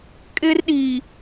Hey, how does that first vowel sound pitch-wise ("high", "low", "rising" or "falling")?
high